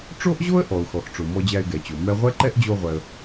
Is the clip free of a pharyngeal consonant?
yes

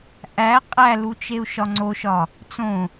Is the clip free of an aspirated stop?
yes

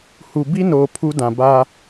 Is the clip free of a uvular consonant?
yes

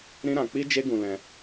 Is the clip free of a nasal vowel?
no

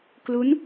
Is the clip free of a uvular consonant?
yes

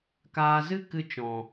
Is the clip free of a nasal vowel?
no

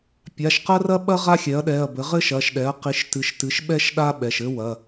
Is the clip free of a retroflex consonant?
yes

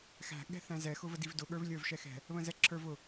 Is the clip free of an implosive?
no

